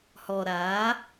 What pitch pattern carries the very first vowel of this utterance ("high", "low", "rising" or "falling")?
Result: low